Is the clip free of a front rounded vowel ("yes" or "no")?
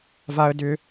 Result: no